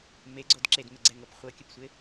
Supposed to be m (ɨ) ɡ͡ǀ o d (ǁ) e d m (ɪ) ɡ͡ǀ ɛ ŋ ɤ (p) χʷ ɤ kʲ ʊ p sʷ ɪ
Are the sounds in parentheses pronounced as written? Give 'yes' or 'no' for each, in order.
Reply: no, yes, yes, yes

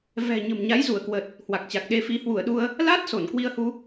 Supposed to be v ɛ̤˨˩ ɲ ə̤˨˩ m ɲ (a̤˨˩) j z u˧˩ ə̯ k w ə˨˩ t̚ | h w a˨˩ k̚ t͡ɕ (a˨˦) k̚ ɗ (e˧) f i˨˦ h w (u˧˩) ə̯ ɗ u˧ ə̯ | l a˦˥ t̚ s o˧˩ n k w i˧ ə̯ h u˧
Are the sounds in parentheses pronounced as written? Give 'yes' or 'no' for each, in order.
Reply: no, no, yes, yes

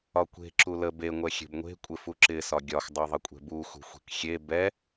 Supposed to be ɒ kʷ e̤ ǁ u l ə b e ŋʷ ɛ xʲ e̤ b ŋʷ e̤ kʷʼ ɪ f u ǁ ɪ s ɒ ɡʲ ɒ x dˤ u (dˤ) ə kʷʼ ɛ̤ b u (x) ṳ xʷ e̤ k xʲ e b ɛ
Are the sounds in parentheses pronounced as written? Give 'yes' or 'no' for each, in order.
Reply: no, yes

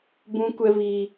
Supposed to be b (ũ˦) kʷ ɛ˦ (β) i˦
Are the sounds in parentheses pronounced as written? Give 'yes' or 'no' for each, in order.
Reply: yes, yes

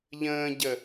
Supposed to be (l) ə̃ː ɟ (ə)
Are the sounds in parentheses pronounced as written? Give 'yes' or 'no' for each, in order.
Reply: no, yes

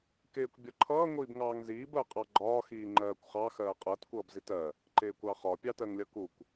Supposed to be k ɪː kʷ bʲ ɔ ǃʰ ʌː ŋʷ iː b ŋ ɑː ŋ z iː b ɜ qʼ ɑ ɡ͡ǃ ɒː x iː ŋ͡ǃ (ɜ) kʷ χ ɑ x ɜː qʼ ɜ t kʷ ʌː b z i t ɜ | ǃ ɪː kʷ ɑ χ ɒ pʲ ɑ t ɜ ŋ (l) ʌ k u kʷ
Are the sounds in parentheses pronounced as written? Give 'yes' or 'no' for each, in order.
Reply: no, no

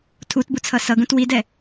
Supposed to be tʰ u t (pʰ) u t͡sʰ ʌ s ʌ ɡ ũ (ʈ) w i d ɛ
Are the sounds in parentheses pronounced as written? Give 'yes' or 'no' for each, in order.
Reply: no, no

